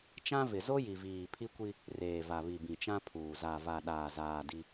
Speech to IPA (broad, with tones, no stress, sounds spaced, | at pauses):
t͡ʃ ã˦ v ɪ˨ z o˦ j i˨ v iː˨ pʰ i˦ kʷ i˦ | r eː˨ v a˨ β i˨ b ĩ˨ t͡ʃ ã˦ pʰ uː˨ z a˨ v a˨ ɗ aː˨ z aː˨ d i˦